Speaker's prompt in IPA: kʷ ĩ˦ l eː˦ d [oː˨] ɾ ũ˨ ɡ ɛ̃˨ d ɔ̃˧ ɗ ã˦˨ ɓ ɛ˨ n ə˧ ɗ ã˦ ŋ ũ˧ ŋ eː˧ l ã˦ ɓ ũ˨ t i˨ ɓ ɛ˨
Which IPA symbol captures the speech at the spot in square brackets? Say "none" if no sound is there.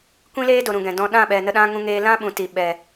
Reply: o˨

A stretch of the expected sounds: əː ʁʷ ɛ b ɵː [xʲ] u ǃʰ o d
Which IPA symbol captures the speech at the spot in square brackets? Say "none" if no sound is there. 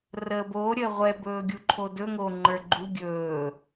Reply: ɡʲ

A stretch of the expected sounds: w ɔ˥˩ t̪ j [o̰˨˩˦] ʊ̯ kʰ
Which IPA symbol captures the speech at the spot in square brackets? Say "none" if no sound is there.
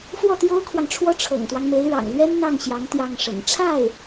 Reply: o˥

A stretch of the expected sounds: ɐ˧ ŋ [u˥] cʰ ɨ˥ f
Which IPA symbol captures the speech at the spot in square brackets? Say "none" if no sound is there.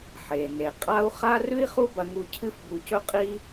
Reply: u˧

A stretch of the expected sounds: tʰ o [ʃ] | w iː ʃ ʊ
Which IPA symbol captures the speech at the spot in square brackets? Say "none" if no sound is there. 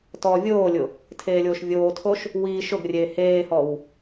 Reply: ʃ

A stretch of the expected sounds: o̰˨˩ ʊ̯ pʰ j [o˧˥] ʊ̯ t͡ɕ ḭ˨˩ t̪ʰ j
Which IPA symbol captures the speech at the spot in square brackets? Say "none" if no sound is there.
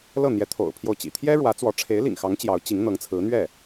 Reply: o˥˩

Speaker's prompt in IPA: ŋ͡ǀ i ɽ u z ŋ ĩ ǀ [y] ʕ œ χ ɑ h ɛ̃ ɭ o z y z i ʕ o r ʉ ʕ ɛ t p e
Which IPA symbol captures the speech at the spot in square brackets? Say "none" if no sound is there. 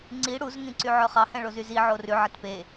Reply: y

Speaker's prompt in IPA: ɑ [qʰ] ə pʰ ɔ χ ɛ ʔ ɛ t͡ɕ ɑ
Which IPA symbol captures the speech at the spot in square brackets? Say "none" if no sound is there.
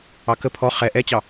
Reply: k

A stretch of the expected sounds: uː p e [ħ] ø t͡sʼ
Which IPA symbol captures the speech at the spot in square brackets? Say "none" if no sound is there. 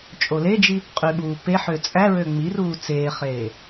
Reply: ħ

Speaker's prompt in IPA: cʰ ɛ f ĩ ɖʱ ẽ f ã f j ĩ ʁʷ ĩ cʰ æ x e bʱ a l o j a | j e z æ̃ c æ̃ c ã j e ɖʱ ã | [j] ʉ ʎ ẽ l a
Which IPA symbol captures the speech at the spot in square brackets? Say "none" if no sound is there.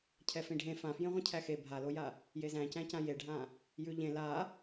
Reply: j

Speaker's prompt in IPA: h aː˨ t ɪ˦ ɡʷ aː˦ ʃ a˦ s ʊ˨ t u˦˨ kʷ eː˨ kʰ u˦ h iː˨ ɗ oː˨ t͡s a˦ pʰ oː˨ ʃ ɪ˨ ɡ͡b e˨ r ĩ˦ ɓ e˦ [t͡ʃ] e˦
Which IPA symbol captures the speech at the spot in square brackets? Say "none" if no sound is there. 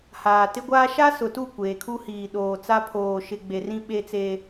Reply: t͡s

